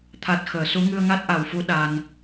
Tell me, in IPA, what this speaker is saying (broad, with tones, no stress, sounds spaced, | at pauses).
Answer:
t̪ʰ a˨˩ t̚ x əː˨˩˨ s u˧˥ ŋ ɨ˧ ə̯ ŋ a˦˥ t̚ ʔ a˨˩ w f u˧˥ ɗ a˧ n